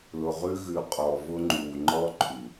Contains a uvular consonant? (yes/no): yes